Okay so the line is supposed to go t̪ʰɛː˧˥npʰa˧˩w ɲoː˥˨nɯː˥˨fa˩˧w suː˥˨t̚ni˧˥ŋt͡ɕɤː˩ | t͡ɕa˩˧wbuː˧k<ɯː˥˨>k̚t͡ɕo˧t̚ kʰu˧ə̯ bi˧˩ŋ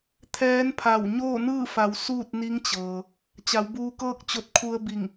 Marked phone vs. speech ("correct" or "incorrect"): incorrect